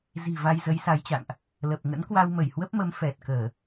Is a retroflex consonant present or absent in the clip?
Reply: absent